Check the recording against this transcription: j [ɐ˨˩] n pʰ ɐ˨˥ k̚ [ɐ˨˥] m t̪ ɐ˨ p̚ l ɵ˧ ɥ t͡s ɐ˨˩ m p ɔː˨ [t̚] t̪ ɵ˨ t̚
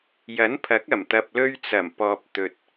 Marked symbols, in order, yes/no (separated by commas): no, no, no